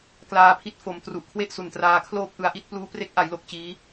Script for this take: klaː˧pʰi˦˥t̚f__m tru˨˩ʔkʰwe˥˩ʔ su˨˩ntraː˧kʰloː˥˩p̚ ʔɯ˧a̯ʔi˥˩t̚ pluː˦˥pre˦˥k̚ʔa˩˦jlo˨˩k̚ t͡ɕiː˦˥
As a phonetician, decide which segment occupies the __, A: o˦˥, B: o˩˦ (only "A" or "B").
B